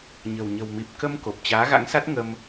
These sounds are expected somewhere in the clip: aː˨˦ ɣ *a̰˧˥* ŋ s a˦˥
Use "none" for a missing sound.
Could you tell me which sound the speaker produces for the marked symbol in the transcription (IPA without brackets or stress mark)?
a̰˧˥